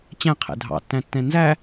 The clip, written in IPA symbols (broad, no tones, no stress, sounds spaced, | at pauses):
t͡ɕ æ̃ qʰ ɛ̰ dʱ ɑ̰ tː æ̃ tː ɛ̃ n z æ